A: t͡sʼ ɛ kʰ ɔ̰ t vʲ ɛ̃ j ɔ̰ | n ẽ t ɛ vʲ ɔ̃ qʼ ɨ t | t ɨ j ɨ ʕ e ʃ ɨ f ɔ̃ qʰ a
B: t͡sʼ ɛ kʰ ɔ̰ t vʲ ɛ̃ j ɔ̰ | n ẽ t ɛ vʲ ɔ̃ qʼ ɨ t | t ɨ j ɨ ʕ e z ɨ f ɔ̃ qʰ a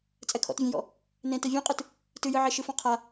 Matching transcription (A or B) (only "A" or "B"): A